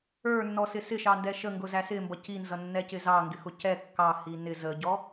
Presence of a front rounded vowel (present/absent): absent